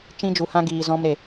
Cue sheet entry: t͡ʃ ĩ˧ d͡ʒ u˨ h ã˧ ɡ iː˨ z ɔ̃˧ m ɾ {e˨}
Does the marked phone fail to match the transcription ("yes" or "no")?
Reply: no